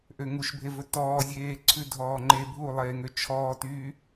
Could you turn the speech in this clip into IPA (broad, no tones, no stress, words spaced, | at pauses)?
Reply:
ʔøŋuʃbʱevɵ tɔːzʲeːǀʰʉ dʱɔːŋ͡ǃe bʱulˠeːŋø t͡ʃʰɔːtyː